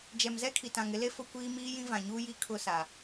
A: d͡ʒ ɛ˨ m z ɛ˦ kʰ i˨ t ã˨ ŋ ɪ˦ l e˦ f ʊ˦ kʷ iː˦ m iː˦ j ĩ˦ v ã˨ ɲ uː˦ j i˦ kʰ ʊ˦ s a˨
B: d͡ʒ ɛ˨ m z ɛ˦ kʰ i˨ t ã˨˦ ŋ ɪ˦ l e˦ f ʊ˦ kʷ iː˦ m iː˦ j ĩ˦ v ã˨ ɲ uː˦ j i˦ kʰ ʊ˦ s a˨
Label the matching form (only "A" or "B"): A